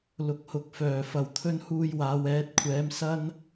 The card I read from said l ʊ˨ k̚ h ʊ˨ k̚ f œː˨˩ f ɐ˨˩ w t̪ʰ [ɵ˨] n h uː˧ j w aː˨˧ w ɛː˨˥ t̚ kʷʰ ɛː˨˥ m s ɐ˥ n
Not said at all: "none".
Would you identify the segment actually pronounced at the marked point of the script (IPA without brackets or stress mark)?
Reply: ɵ˧